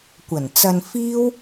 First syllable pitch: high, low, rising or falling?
low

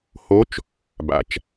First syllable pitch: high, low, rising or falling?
rising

